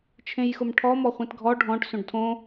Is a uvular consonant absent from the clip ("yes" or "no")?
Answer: no